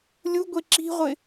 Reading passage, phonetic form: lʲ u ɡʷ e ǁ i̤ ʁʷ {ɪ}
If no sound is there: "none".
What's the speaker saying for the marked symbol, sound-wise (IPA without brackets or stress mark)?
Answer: ɪ